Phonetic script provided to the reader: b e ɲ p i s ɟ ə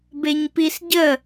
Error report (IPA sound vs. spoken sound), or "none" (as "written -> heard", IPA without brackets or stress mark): none